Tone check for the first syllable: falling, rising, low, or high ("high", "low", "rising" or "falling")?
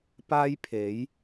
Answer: high